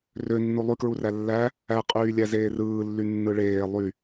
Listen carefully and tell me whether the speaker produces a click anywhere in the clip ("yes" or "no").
no